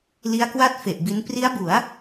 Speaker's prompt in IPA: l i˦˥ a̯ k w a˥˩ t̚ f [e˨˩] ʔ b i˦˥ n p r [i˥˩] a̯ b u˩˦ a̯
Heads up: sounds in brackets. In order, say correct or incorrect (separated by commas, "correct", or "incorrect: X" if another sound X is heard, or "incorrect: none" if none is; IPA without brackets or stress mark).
correct, incorrect: i˦˥